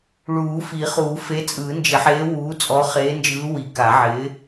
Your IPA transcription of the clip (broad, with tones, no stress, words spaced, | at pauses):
ɭuː˨˩˦fi˨˩˦χuː˨˩˦ fe˨˥t͡sʼɯː˨˩˦nd͡ʒɪ˨˩˦ħeː˨˥ wuː˨˥ t͡sʼɔ˨˥χeː˨˥nd͡ʒɯː˨˥ wi˨˩˦ ka˨˩˦ʕɪ˨˥